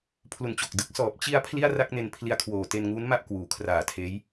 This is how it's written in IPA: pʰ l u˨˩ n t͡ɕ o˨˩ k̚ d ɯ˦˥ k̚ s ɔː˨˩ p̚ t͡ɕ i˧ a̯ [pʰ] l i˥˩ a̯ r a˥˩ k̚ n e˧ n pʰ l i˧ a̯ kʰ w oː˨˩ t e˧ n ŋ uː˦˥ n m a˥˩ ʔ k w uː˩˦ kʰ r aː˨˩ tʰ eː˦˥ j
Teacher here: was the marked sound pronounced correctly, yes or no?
yes